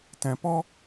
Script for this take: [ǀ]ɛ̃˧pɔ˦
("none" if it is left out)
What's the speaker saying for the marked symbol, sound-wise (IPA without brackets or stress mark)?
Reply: t